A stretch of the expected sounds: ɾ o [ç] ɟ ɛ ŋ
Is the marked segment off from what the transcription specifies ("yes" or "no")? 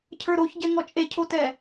no